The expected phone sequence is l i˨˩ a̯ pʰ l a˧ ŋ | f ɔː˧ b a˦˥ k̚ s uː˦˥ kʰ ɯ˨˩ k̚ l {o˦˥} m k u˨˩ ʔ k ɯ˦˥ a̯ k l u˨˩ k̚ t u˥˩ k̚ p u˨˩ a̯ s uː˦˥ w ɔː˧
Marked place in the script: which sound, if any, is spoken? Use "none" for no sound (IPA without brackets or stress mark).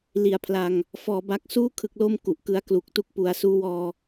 o˧